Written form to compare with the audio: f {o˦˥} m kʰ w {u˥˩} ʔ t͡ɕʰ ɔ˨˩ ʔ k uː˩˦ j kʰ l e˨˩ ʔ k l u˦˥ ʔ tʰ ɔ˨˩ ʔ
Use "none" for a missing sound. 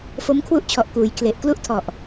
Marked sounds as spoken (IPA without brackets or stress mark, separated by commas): o˦˥, u˦˥